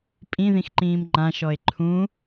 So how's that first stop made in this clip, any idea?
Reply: ejective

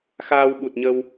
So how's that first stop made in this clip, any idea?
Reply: implosive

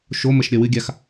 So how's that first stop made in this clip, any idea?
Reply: plain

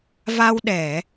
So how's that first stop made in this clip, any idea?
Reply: implosive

